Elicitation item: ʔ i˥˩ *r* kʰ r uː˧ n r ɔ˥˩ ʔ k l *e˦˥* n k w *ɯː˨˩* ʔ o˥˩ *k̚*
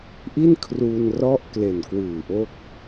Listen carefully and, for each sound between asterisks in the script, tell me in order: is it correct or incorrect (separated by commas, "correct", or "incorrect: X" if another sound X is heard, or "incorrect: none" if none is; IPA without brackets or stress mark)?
incorrect: n, incorrect: e˨˩, correct, correct